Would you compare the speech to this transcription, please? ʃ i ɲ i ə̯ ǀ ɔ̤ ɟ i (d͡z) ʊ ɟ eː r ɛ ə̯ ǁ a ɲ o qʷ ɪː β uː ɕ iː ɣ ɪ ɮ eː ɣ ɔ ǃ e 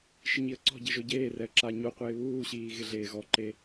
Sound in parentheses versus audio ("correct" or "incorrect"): incorrect